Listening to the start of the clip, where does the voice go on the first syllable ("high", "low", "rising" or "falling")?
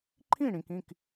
falling